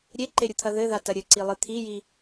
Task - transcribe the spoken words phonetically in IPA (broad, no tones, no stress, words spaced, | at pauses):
ɾʲeǃeɾʲut̪ʰɐ ðɘðatɐ ɾʲɘǀilˠɨ t̪ʰiji